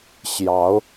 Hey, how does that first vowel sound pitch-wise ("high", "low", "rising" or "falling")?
rising